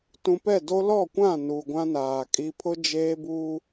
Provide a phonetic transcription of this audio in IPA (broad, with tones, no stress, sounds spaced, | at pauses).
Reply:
t ũ˨ p ɛ˦˨ d o˦ l ɔ˦˨ kʷ ã˦˨ n u˨ ɡʷ ã˦ n aː˨ kʼ i˦ pʰ ʊ˦ d͡ʒ eː˦ b uː˦